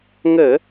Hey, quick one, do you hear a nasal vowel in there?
no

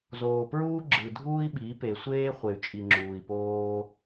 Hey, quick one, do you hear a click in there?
yes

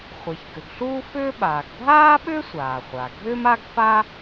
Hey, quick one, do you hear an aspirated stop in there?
no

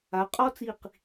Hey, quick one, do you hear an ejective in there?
yes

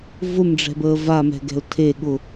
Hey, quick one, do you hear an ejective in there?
no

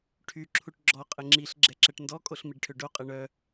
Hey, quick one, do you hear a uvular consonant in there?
yes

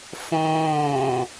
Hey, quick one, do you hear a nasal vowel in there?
yes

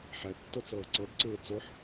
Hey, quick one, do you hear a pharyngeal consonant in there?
yes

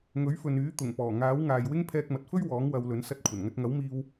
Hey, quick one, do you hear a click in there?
no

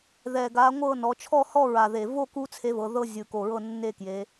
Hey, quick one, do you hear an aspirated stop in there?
yes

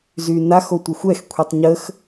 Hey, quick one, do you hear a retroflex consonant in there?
no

